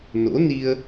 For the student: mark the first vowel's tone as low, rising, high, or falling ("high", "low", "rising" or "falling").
rising